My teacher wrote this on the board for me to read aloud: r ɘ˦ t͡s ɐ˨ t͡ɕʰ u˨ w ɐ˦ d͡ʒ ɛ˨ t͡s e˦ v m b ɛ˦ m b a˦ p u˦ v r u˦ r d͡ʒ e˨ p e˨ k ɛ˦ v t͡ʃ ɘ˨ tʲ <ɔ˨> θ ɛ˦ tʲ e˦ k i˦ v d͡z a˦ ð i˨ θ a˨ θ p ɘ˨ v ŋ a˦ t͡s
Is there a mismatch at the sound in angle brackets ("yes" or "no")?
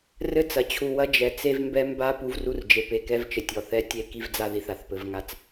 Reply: no